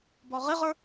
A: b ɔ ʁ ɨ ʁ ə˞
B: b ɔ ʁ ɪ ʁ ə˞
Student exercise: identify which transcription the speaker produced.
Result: B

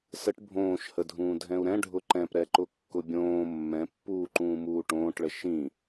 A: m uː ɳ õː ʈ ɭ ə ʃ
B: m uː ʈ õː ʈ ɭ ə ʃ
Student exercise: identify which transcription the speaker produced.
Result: B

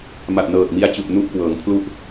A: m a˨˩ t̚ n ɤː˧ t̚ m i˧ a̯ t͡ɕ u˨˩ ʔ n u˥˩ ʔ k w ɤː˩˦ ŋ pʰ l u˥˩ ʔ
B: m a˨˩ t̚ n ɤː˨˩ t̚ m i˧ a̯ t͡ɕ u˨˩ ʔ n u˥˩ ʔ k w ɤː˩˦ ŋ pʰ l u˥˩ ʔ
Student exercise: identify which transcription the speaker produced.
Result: B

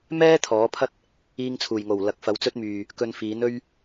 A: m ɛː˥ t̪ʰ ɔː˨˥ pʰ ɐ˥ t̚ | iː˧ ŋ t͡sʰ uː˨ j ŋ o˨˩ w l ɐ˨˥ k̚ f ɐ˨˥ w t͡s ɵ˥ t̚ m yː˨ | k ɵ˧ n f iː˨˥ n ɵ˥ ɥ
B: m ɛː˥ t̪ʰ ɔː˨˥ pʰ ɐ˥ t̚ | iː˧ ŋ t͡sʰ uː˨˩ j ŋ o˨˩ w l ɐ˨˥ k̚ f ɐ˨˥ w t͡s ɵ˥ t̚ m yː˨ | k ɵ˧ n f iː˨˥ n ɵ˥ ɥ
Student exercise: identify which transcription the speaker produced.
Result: B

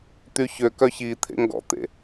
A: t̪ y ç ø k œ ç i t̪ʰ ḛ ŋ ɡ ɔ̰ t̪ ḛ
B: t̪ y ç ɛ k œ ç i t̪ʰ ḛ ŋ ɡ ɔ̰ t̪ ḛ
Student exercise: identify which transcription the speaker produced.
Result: A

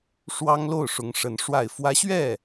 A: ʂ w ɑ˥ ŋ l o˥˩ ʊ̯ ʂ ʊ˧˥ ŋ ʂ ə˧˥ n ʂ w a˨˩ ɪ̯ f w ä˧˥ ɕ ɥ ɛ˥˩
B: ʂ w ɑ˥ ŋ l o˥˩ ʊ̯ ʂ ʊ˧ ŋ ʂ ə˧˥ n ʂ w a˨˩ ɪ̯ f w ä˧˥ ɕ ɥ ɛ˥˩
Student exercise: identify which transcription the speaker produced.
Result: A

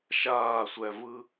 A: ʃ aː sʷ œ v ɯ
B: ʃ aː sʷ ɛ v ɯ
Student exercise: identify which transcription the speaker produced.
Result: B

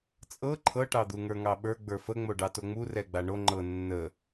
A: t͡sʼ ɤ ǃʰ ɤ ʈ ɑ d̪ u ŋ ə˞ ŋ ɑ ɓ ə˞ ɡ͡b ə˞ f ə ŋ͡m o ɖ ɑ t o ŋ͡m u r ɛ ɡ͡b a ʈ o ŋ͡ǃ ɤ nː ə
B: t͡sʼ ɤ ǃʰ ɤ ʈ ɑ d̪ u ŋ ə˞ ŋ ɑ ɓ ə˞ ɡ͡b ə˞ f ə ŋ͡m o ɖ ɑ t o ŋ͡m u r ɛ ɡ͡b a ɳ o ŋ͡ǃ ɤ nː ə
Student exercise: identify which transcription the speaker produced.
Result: B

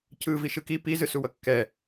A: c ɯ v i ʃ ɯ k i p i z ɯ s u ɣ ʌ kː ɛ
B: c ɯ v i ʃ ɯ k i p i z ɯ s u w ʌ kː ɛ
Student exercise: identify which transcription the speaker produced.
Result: B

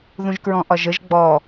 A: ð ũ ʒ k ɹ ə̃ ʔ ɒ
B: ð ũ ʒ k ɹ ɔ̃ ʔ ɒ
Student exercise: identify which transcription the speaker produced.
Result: B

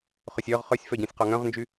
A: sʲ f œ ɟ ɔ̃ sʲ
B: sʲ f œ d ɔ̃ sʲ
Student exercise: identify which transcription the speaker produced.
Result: A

